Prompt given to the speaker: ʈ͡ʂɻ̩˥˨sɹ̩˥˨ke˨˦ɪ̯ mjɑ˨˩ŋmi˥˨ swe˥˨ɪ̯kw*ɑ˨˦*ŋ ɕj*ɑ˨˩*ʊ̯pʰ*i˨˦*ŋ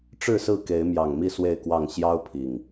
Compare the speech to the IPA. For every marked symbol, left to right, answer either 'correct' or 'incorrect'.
incorrect: ɑ˥˨, incorrect: ɑ˦, incorrect: i˨˩

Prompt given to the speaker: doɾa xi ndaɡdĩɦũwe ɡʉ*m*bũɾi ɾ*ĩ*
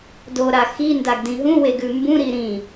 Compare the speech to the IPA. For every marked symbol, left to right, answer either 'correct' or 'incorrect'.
correct, correct

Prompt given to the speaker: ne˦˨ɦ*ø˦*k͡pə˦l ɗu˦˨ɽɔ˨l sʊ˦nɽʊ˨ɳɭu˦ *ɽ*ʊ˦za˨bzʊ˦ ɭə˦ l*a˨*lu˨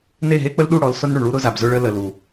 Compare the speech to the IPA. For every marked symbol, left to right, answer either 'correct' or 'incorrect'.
incorrect: e˦, incorrect: ɾ, incorrect: ə˨

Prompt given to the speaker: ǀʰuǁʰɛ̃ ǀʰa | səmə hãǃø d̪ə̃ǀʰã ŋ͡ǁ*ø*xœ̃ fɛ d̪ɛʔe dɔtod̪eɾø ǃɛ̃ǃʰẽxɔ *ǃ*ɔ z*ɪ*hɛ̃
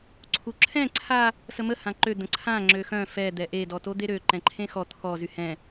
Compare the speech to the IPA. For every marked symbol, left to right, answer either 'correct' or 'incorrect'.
correct, incorrect: t̪ʰ, incorrect: y

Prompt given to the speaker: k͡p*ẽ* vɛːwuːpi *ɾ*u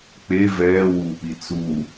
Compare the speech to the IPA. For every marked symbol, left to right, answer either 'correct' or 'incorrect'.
incorrect: e, incorrect: t͡s

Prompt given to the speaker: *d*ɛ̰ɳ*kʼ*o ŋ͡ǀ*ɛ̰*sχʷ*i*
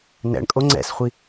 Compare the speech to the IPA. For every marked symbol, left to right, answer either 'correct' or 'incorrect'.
incorrect: n, correct, correct, correct

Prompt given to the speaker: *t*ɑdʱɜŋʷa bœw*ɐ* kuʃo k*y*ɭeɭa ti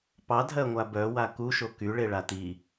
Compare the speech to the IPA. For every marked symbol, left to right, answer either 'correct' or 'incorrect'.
incorrect: p, incorrect: a, correct

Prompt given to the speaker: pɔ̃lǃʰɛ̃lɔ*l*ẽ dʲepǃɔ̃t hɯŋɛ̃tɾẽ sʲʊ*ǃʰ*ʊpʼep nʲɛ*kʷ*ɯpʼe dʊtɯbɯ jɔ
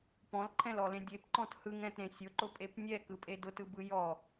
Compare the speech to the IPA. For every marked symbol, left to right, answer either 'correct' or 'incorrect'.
correct, incorrect: ǃ, incorrect: k

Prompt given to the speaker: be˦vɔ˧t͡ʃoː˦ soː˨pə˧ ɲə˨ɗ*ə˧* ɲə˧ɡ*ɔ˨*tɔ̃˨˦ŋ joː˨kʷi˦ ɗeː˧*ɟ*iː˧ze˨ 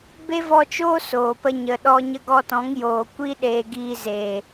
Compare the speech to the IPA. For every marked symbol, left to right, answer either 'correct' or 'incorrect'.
incorrect: ɔ˧, incorrect: ɔ˧, incorrect: ɡ

